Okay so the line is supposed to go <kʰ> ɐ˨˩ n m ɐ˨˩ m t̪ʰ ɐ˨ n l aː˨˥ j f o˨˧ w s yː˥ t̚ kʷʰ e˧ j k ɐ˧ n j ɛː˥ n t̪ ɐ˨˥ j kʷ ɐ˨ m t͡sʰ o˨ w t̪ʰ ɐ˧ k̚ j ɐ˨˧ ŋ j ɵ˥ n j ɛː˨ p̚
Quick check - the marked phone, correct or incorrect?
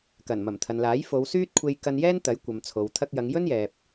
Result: incorrect